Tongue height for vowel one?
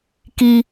high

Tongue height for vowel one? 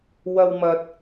low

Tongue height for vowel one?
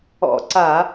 mid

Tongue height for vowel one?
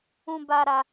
high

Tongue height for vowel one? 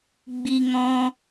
high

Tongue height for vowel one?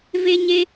mid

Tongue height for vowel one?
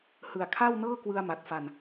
high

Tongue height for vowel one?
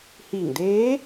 high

